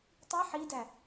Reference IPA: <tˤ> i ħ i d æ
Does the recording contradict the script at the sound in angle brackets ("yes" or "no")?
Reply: no